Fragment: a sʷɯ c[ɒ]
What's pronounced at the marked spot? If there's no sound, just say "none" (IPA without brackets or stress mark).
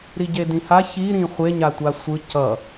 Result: ʌ